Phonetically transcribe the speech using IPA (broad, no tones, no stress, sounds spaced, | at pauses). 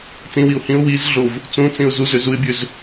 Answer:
t͡s ĩ w i ʊ̯ h ĩ ʊ̯ w i z ɮ o v | t͡s ũ t͡s ĩ ʊ̯ z u z ø z u ɪ̯ bʲ ø z